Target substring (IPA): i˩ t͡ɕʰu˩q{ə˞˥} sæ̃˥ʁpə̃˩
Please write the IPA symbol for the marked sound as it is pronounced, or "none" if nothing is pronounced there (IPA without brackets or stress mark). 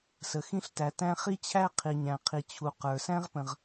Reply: ə˞˩